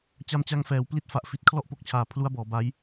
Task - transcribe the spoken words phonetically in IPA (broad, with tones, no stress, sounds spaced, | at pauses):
t͡ɕ a˧ m t͡ɕ a˧ ŋ f ɛː˩˦ w p l i˦˥ t̚ f a˨˩ ʔ f i˨˩ t̚ kʰ l ɔ˦˥ ʔ p o˨˩ k̚ t͡ɕʰ aː˨˩ pʰ l u˦˥ a̯ b ɔː˩˦ b a˦˥ j